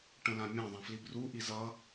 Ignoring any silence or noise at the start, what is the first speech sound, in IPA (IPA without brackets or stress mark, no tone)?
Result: ʈ